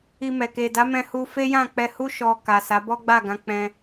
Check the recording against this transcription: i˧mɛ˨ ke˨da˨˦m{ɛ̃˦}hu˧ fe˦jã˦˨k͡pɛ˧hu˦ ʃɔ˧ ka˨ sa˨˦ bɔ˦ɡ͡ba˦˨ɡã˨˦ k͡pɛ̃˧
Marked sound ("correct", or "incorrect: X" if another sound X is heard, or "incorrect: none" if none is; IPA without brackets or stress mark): incorrect: ɛ̃˧